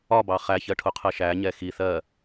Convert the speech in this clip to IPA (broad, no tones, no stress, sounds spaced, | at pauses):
ɒ b ɑ χ æ ç ɜ ʈʰ ʊ qʰ ɜ ʃ æ ɲ ɛ x i θ ɜ